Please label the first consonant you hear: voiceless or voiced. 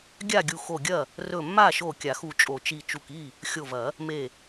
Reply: voiced